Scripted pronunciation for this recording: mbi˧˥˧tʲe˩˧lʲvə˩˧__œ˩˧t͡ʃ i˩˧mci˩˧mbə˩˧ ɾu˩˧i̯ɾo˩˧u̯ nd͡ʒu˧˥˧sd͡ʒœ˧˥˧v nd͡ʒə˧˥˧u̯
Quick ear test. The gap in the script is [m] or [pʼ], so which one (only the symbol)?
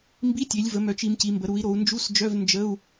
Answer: m